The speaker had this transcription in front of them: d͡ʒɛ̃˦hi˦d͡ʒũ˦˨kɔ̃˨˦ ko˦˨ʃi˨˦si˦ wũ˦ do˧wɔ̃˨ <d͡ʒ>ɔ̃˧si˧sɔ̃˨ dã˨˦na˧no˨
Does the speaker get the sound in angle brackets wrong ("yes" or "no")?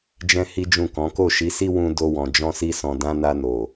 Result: no